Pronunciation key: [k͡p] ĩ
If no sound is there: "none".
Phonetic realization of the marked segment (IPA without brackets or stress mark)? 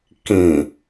k